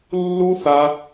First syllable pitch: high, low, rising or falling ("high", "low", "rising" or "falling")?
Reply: high